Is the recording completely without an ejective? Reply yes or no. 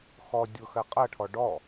no